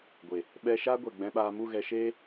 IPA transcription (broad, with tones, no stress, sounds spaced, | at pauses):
ɡʷ e˨ | ɓ ɛ˧ ʃ aː˦ ɡʷ ɛ˨ ɡ͡b ɛ̃˧ ɓ aː˧ m u˦˨ ɣ ɛ˧ ʃ eː˦